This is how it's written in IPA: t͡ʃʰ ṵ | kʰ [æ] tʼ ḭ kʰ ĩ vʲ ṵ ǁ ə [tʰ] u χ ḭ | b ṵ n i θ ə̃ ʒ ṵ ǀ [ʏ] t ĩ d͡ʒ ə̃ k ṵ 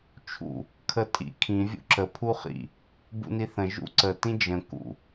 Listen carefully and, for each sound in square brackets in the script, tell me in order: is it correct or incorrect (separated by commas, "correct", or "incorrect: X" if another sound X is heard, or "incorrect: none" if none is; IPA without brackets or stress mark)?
incorrect: ə, incorrect: pʰ, incorrect: ə